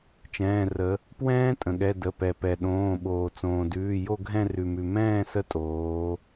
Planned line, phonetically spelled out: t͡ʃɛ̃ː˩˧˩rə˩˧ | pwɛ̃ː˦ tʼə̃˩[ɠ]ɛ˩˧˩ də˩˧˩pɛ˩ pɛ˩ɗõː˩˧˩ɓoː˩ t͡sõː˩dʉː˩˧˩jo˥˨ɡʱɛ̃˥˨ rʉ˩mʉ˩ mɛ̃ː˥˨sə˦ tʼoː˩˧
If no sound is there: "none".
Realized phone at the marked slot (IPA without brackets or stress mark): ɠ